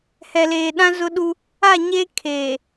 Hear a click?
no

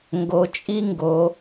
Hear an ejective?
yes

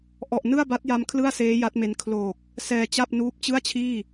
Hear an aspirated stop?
yes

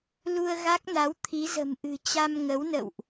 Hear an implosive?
no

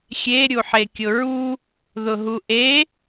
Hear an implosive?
no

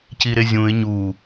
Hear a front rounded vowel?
no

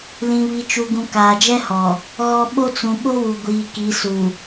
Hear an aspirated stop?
no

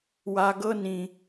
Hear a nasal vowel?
yes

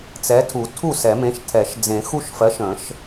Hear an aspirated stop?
yes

